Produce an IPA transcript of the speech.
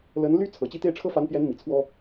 l ə˧˥ n l y˥ t͡sʰ ɤ˨˩ t͡ɕ i˥˧ t̪ e˥˩ ɪ̯ ʈ͡ʂʰ ɤ˥ f a˧˥ n p j ɛ˧˥ n m i˨˩ t͡sʰ w ɔ˥

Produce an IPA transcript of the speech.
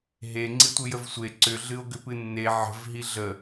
ɦ e ŋ͡ǀ i tʷ ɨ j ə v sʷ e ǀ ʏ ɮ ɨ o̯ ɡ ʏ p ɨ nː e ʕ ə̤ v ɦ i ɮ ə

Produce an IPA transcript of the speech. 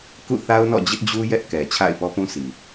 k ṵ˦˨ θ a˦ ʊ̯ n ɔ̰˦˨ d͡ʑ ɪ˦ ʔ d͡ʑ u˦ j ɛ˦ ʔ k ɛ˨ t͡ɕʰ a̰˦˨ ɪ̯ p ɔ˦ p ũ˦ sʰ i˨

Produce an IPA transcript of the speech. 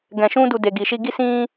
ɡ ɛ̃˧ ʃ ũ˦ d u˧ d e˨ ɡ i˨ ʃ i˧ ɡ i˦ s ĩ˦

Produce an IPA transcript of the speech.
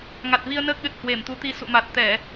ŋ a˨˩ t̚ v i˧ ə̯ n əː˦˥ k̚ ɗ ɨ˨˩ t̚ h w e˧˩ m t̪ u˨˦ t̪ i˧ s ṵ˧˨ m a˨˩ t̚ t̪ ɛ˧˩˨

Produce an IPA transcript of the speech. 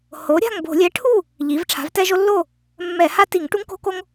h o˩˥ ɾʲ a̤˥˨ ŋ b o̤˧˩˧ lʲ ɛ˩˥ ʈʰ u˥˨ | ʎ i˩˧ v ʈ͡ʂʰ a̤˩˥ v t ɛ˦ ʒ o˦ lː o˥˨ | mː ɛ˧˩˧ h a˥˨ t i˧˩˧ ŋ ʈ u˦ ŋ k o̤˦ k o˦ ŋ

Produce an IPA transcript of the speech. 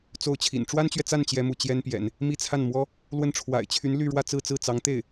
t͡s o˥˩ ʊ̯ t͡ɕʰ ḭ˨˩ n ʈ͡ʂ w a˥ n t͡ɕ ɥ ɛ˨ t͡s a˥˩ n t͡ɕ j ɛ˥ m u˥˩ t͡ɕ j ɛ˥ n p j ɛ̰˨˩˦ n | m i˥˧ t͡sʰ a˥˩ n m w ɔ˥ | l w ə˥˩ n ʈ͡ʂʰ w a̰˨˩ ɪ̯ t͡ɕʰ y˧˥ n l y˥˧ ɻ w ä˥˧ t͡s ɹ̩˥˧ t͡s ɹ̩˥˩ t͡s ɑ˧˥ ŋ t̪ e˥˩ ɪ̯

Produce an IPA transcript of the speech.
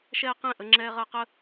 ʃ ɛː˦ q ɛ̃˥˩ ʔ ə˦ ŋ͡ǁ ɛː˦ ʁ ɜ˦ q ə˦

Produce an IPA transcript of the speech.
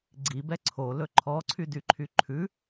ɡ͡ǀ i b ɛ ǀʰ o l ɵ ǃʰ ɔ ǀʰ y d y ǃʰ y ǃʰ ʉ

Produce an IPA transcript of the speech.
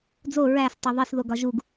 d͡z o ɹ æ s tˤ e ðˤ i s ð o ɡ ɒ ʒ u ɡ

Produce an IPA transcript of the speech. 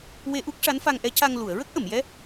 w e˧ ʔ u˦˥ k̚ ʂ a˧˥ n f a˧ ŋ ʔ ɛ˧˥ c a˧ ŋ l u˨˩˨ ə̯ ɹ ə˦˥ k̚ ʔ ə˨˩˨ m j ɛ˧˥

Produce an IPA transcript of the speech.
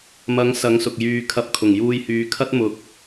m ɐ˨˥ ŋ s ɐ˨˥ ŋ s ʊ˨ k̚ j yː˨ kʰ ɐ˨˥ p̚ kʰ ʊ˨˩ ŋ j uː˧ j h yː˨˧ kʰ ɐ˥ t̚ m ʊ˨˥ k̚

